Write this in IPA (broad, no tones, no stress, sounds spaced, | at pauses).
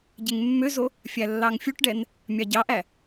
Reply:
ɟ e ŋ mː ø z o | fʲ æ lː ɑ ŋ fʲ u ʈ ɖ ɛ n | mʲ ɑ ɟ ɑ ʔ æ